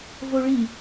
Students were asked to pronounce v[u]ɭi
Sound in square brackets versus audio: incorrect: o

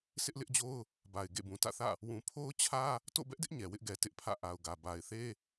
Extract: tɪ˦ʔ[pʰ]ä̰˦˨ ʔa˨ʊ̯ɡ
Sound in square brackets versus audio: correct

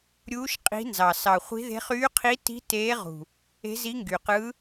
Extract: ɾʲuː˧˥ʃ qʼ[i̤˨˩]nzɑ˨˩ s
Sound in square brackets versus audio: incorrect: i̤˧˥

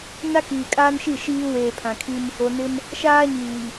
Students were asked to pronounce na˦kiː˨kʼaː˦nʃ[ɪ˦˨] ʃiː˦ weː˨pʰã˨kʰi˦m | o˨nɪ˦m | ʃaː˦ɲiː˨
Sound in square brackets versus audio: incorrect: i˦˨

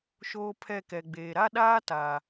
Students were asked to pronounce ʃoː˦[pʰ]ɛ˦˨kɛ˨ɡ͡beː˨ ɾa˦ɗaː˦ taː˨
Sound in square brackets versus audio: correct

